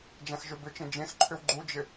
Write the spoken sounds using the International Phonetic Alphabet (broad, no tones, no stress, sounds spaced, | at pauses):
d͡ʒ ã x ʒ ø b ʏ t͡ʃ ẽ d͡ʒ ẽ x ǃʰ ʏ w ɡ͡ǃ u d͡ʒ ɪ